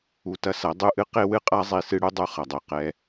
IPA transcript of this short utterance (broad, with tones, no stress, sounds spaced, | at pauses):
u˨ t ɐ˦ s ɐ˨˦ dˤ u˦ ʔ ɨ˦ q e˦ w ɨ˦ qʼ a˦ zˤ i˨ s ɨ˦ ɽ u˦ dˤ u˦ χ ɐ˨ dˤ e˨ q ɛ˦